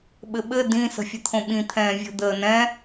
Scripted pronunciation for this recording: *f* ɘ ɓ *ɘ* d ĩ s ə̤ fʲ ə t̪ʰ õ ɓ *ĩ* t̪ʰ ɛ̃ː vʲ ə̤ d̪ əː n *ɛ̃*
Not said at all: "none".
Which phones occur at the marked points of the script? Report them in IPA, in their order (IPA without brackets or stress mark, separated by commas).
ɓ, ɘ, ĩ, ɛ̃